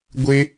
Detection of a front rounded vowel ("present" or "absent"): absent